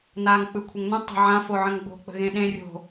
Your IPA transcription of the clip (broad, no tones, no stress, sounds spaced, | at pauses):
n a ŋ k͡p ɯ kʷʰ ə ŋ n ə̃ tˤ ə̤ ʕ ã f o ʕ ə̃ ŋ ɡ͡b o̤ k͡p ə̤ ɣ ẽ ɗ ẽ rʲ o̤